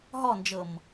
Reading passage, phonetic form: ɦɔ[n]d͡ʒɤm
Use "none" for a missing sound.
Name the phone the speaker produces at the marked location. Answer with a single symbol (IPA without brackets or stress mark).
n